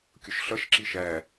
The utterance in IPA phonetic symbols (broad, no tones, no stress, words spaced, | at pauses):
kʲʊʃɬʌʃǁi ʃæ